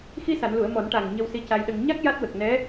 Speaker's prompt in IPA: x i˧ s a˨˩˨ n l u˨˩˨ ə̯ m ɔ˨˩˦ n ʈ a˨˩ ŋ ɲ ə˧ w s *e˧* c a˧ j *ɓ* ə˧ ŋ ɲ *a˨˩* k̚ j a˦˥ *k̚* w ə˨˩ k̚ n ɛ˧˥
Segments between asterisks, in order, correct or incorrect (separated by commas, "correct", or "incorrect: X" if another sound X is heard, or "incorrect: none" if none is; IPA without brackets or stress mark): incorrect: i˧, incorrect: ɗ, incorrect: a˦˥, incorrect: t̚